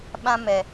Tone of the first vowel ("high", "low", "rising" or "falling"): high